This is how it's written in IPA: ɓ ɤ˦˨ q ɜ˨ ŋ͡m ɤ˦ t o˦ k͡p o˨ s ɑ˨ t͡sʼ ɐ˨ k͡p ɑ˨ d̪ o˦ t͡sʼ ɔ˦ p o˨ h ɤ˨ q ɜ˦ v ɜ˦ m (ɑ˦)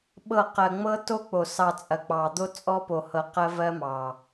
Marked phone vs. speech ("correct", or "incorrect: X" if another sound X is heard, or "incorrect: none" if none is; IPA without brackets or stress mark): incorrect: ɑ˨